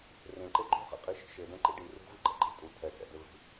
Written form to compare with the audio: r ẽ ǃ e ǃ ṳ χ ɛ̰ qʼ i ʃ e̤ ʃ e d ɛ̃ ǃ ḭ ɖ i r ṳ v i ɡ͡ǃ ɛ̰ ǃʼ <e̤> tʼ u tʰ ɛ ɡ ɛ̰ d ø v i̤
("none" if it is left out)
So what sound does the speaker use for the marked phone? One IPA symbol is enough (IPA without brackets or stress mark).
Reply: i̤